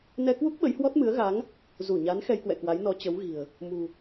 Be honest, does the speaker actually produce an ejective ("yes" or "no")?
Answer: no